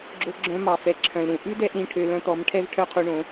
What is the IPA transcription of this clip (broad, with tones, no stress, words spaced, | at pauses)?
ɡ͡ǁo˧ɡ͡ǁœ̃˧ mɑ˨fɛ˨ ǁʰœ̃˨lɾũ˨ ʔʉ˦dɛ˧ʔ ɾĩ˧ʈʰø˧lœ̃˧t̪ɔ˨˦m ʈʰɛ˦vʈʰœ˦qʰu˧ɳõ˨˦